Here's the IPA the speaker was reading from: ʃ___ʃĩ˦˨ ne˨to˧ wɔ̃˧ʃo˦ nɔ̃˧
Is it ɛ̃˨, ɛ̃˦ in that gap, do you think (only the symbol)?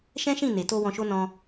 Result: ɛ̃˦